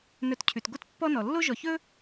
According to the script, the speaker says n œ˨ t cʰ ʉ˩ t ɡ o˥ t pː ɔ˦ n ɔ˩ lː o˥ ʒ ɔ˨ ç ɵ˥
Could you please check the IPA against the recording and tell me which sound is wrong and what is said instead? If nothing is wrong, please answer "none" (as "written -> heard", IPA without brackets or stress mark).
none